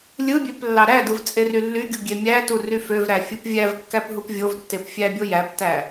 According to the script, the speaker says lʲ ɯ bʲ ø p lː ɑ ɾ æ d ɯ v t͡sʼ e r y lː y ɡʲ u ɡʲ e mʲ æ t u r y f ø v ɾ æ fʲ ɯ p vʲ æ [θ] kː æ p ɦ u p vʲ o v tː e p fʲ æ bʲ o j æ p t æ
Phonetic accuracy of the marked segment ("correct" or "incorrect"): incorrect